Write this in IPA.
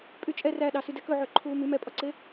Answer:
pʼ y t͡ʃʼ ɛ r æ ɗ ɑ s y d ɛ k ɵ ʕ ø ǃʰ uː m y m ɛ pʼ ɔ ǀ e

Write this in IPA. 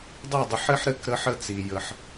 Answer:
dˤ i˥˩ dˤ ə˧ ħ ɘ˥ ħ ɾ ɘ˧ k ɾ ə˧ ħ ə˧ t͡s i˩ j ə˩ ħ

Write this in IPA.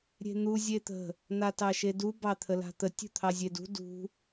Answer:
ɾʲ e̤ n̪ u zʲ e t̪ ə̤ | n̪ a t ɑ ʃ e d u b ɑ t̪ʰ ə l a̤ t̪ ə tʲ ṳ t̪ʰ ɑ zʲ e d ṳ d ṳ

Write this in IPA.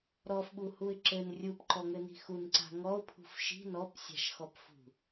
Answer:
ɾ ɔ f ɓ u h u ɪ̯ ǁ ɘ n rʲ u p ǃ ɔ ŋ ɘ n i̤ x u n ǀ a̤ ŋ ɔ ʊ̯ pʰ ṳ f ʃ i̤ n ɔ p sʲ a̤ ʃ x ɔ p f ṳ

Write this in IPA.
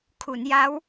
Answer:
kʰ u˩˦ n j a˦˥ w

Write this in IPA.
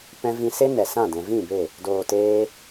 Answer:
p ɛ̃˧ v ĩ˧ s e˦ n ɛ˨ s ã˦˨ d ɛ̃˨ v ĩ˦˨ b e˦˨ | d oː˨ t eː˧

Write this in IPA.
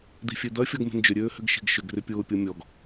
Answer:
d̪ i̤ fʲ e d̪ ɐ fʲ ɔ ɡ m e̤ n d͡ʒ ʏ ɾʲ øː h ʏ ɡ ʃ i̤ ɡ ʃ ʏ ɡ r ʏ pʲ ʊː pʲ ɔ mʲ ɔ ɡ

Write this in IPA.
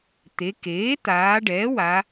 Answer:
t̪ e˩˧ k eː˩˥ t̪ aː˩˧ ɖ ɛː˩˥ w a˩˧

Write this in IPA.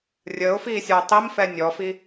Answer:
rʲ əː ʊ̯ f iː sʲ ɔ ʊ̯ tˤ i m f ɛ nʲ ɔ f i

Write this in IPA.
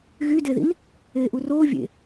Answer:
ɣ y d e ð ḭ n | eː ʔ u r oː vʲ ḛ

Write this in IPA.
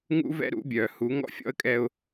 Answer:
ŋ ṵ˦ v ɛ̰˦ ɾ ṵ˨˦ bʲ œː˨ h u˨˦ ŋ ɔ̰˦ fʲ ɔ̰˦ ə̯ kʼ ɛ˦ ʊ̯

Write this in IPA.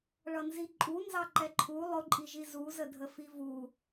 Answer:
ɭ ʌ n z i ǃʼ u n z ɑ ǃ ɛ ǃʰ u lˠ ʊ ǃʼ i ʒ i z u z ə dʱ ə f i v u

